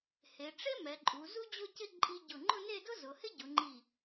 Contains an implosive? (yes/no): no